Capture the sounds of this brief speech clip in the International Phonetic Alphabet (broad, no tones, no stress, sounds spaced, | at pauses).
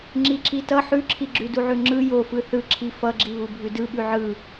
ŋ͡ǁ i ǁ i t ʌ ħ ʉ ǁʰ i ɡ͡ǁ ʉ d u ʕ ʉ ŋ͡ǁ ɯ j o f ɯ θ ɯ ǁʰ i f ʌ ɡ͡ǁ i β u bʱ ʉ d ɯ ɓ ʉ ʕ ɯ